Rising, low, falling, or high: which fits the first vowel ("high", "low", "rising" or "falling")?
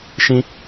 high